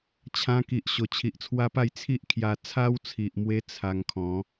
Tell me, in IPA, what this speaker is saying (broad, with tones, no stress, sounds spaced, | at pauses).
t͡ɕʰ ã˧ k i˨ ʔ ɕ o˨˩ t͡ɕʰ i˨ ʔ t͡sʰ w a˦ p a˥˧ j t͡sʰ i˦ ʔ kʰ j a˧ t͡sʰ a˦ w t͡sʰ i˨ ʔ m w e˧ t͡sʰ a˧ ŋ kʰ ɔ̃˨˦